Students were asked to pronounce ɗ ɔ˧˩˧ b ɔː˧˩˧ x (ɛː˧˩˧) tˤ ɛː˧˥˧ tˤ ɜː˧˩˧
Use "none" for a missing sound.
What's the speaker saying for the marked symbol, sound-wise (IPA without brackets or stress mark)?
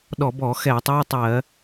ɛː˧˩˧